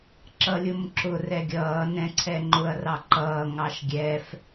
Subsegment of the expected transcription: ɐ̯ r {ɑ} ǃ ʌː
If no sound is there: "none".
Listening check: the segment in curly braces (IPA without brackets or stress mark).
ɑ